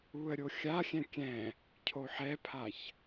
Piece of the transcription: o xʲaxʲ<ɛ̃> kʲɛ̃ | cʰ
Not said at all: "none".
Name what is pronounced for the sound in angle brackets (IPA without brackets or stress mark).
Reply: ɛ̃